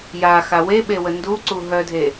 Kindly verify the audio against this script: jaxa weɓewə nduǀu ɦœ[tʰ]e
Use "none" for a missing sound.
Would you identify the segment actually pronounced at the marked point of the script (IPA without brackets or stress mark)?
dʱ